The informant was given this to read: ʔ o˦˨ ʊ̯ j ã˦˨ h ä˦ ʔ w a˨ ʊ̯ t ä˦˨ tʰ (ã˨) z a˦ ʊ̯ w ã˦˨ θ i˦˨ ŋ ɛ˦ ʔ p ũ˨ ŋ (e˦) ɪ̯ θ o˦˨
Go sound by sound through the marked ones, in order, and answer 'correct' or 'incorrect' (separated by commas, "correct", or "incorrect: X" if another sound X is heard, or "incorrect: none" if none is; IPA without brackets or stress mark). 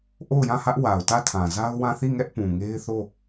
correct, correct